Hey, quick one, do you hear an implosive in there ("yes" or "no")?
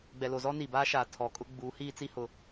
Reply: no